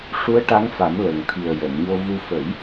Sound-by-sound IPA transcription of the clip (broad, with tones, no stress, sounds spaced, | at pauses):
ʂ u˧˥ ə̯ ʈ a˧˥ ŋ f a˨˩˦ m l ə˨˩ ŋ t̪ʰ i˨˩ ə̯ j ə˨˩˨ m ɲ o˧ v u˧ f ə˨˩˦ j